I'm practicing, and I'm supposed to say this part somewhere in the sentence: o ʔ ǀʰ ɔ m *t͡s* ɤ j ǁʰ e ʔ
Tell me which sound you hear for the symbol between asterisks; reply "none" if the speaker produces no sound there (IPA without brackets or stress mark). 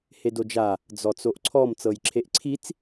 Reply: t͡s